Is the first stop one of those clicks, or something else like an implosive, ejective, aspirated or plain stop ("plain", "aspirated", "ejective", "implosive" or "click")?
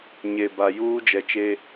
plain